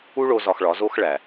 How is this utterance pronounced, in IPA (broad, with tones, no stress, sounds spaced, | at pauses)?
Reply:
u˦ ɭ o˧ z ɒ˧ x ɭ ɒ˨˦ z o˦ x ɭ æ˨